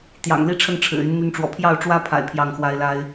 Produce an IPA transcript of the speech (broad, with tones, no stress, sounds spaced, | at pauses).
t̪ j ɑ̰˨˩ ŋ l i˦ ʈ͡ʂʰ ə˥˨ n ʈ͡ʂʰ ɻ̩˨˩ y˨˦ n n̪ y˨˦ n ʈ͡ʂ w ɔ̰˨˩ pʰ j ɑ˥˨ ʊ̯ ʈ͡ʂ w ä˦ pʰ a̰˨˩ ɪ̯ pʰ j ɑ˥˨ ŋ x w a˦ ɪ̯ l a˦ ɪ̯